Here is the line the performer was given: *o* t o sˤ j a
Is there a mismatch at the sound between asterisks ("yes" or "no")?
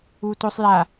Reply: yes